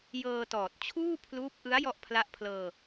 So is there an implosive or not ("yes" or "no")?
no